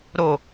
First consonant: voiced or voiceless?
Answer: voiced